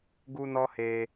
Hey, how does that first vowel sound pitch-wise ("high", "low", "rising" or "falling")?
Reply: high